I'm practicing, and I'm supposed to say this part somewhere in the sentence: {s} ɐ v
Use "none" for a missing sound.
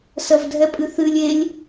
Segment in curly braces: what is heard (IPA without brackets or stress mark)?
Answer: s